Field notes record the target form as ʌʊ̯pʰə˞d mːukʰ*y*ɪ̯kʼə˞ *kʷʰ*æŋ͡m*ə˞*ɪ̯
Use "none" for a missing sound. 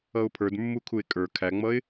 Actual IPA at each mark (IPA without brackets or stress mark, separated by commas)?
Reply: u, kʰ, ʌ